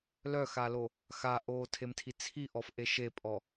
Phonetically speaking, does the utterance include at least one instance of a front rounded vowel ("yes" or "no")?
yes